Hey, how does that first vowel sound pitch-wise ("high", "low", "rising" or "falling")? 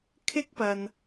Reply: high